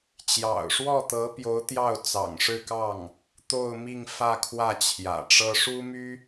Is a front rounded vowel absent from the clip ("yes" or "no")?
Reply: no